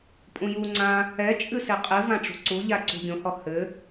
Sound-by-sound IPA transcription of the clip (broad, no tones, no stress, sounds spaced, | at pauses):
pʼ ũ j u ŋ͡ǀ ã | ɛ t͡ʃʼ ɨ s e qʼ ɨ v ã ʈ͡ʂ ṳ ǀ u ʎ a ǀ ṳ ɡʲ õ h ɔ h ɘ